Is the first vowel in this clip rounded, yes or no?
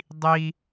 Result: no